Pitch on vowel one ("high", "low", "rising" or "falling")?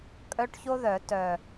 high